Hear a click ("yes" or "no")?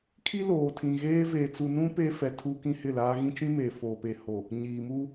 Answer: no